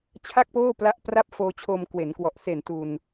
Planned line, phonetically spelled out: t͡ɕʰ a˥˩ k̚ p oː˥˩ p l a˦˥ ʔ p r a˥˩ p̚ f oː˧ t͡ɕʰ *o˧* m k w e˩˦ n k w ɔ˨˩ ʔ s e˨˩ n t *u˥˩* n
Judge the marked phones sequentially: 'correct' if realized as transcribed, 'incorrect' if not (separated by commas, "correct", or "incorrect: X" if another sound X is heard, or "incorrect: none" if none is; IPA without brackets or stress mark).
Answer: correct, incorrect: u˧